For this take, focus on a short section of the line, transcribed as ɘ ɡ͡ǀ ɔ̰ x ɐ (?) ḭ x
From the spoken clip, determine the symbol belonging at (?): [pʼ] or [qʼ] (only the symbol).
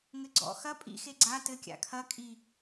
pʼ